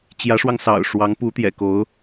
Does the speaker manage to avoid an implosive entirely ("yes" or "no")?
yes